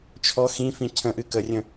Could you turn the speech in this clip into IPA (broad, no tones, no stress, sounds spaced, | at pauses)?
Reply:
t͡ʃʰ ɔ x ĩ f ĩ cʰ ə̃ ʔ ɨ k ə rʲ ə̃